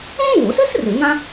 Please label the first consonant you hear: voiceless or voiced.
voiced